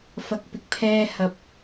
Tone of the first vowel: low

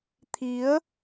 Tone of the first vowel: rising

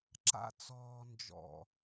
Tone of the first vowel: high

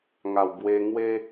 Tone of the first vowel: low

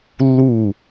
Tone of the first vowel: falling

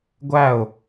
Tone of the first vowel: falling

